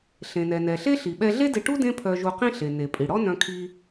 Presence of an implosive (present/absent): present